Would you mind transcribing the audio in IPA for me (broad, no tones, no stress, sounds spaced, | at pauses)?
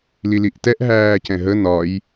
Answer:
l i l i ʔ t ɛ ʔ ɦ æː c ɛ̃ ɦ ə n ɒ j